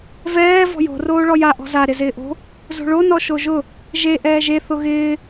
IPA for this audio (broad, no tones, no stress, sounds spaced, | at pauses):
v ɛː v ɔ̤ j o̤ r oː ɭ ɔ j a ʔ ɔ̤ z a ɾ ɪ z ɪː ʔ o̤ | z o̤ ɭ o n ɔ ʃ o ʒ ʊ | ʒ e ʔ ɛː ʒ e θ ʊ ɣ ɪː